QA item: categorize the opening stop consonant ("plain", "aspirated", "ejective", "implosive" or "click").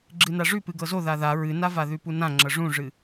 click